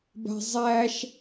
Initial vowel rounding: unrounded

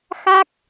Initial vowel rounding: unrounded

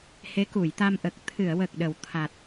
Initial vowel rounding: unrounded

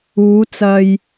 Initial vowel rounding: rounded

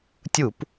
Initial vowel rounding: rounded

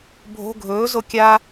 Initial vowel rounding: rounded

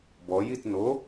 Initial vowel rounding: rounded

